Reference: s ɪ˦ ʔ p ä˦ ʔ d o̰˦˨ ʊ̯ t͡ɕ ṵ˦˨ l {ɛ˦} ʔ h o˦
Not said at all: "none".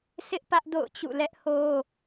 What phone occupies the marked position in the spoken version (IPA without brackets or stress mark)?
ɛ˦